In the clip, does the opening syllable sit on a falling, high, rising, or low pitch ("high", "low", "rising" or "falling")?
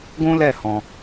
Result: high